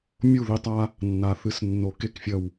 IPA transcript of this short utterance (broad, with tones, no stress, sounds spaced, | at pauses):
mʲ u˥˨ ð i˦ tˤ a˦ | nː a˨˩˦ θ ɨ˨˩˦ s nː o˨˦ k e˥˨ k fʲ ɐ˥˨ w